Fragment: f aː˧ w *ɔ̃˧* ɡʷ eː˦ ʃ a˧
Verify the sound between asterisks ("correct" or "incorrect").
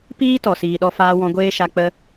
correct